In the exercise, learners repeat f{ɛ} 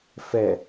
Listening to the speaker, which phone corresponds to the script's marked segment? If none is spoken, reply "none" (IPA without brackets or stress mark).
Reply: ɛ